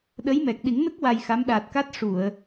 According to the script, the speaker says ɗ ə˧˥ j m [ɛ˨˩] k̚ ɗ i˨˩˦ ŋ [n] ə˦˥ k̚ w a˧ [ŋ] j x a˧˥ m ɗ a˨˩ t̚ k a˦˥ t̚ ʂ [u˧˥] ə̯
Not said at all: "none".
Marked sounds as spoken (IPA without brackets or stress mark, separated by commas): ɛ˨˩, n, none, u˨˩˨